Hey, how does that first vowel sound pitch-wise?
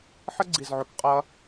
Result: high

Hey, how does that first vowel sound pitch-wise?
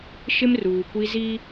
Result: high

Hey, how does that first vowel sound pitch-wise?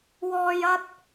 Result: high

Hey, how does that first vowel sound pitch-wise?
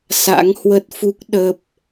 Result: rising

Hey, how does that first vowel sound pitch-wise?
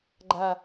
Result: falling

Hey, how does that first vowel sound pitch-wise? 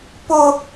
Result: high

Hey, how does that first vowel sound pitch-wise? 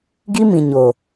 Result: high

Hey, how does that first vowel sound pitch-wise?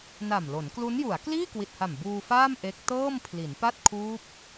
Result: low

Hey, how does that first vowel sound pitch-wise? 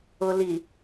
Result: low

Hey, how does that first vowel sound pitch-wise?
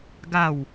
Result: falling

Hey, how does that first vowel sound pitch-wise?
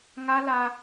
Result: high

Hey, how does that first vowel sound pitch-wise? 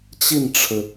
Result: falling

